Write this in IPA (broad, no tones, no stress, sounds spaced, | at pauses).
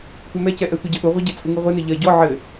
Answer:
tʷ ɛ m ɛ c ɛ ʔ ɛ tʷ ɐ ɟ ɘ ʔ u ʁʷ ɨ ɟ ɘ t͡sʼ u ŋ ɨ ʁʷ ɘ n ɘ ʎ ɐ ɟ ɔ ʕ ɘ